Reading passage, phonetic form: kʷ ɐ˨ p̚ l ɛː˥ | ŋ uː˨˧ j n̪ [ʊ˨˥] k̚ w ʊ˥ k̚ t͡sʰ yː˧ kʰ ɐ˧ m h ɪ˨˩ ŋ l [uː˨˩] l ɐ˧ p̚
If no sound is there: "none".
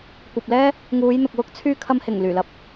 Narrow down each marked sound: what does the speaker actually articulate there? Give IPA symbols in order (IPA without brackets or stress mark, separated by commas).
ʊ˨, yː˨˩